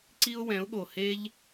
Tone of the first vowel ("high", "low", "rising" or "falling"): high